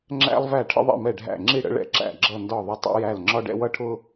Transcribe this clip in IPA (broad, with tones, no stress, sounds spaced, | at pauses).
ŋ͡ǁ æ̰˥ lˠ v æ˥˩ ʈʰ ə̰˥ ðˤ ḭ˥˩ m ɛ˥˩ ɖʱ æ̰˥˩ ŋ͡ǁ i˥˩ ɽ ə̰˥ ɭ ɛ̰˥ ǁ æ̰˥˩ ɡ͡ǁ ʌ˥˩ n d ɒ˥˩ ðˤ ə˥ tˤ ḭ˥ j æ˥˩ l ŋ͡ǁ ɒ˥ ɖ ɛ̰˥ w ʌ˥ ʈʰ ʊ˥